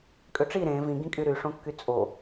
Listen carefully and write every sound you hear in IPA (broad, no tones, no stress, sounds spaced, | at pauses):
kʼ ø ʈ͡ʂ i ɾ ẽ v ĩ ɡ ĩ kʼ y ɾ y ʂ õ kː y t͡sʼ o